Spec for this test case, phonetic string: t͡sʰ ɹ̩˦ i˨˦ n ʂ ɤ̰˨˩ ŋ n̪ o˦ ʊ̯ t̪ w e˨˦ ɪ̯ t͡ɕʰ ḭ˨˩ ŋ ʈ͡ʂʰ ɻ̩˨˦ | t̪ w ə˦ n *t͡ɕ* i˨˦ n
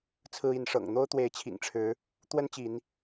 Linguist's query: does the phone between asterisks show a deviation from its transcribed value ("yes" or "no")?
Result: no